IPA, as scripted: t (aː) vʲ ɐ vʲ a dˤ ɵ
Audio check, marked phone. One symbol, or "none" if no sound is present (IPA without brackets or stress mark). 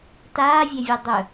aː